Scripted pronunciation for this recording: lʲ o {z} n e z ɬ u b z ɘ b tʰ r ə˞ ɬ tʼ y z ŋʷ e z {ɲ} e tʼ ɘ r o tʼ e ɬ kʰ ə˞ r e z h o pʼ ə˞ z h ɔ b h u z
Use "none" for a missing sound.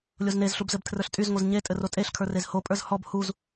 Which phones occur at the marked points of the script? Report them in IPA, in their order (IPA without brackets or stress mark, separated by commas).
z, ɲ